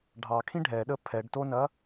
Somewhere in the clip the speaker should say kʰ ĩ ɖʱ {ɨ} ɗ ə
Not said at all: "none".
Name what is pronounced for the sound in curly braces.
ɛ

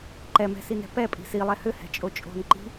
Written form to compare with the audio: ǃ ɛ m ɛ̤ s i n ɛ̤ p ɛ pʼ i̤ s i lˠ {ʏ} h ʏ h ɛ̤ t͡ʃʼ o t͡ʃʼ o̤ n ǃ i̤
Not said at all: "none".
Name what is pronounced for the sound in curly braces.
ɛ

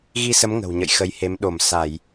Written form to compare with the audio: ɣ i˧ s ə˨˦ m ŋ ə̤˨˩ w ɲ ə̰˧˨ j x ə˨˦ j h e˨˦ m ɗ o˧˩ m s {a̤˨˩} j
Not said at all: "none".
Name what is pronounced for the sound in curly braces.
a˧˩˨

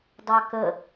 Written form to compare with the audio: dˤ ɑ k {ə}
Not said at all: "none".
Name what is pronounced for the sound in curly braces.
ə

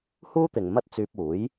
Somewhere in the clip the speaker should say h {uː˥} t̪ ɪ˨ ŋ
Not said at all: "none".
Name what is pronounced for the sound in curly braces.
uː˥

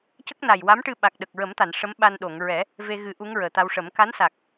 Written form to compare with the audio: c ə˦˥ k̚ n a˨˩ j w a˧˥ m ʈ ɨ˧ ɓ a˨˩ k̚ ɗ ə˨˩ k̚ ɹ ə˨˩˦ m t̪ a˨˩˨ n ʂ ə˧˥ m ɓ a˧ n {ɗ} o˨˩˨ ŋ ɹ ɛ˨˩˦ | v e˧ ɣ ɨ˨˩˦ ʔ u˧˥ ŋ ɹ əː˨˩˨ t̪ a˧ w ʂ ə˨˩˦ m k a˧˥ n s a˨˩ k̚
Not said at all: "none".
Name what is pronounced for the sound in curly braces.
ɗ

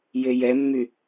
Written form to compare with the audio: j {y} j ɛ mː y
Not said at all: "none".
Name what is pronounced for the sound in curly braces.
e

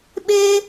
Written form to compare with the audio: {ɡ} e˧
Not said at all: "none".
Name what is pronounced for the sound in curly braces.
ɓ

